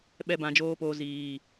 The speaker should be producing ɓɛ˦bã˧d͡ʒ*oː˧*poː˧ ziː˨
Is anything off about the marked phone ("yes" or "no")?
yes